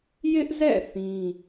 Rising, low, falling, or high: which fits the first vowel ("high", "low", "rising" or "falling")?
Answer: high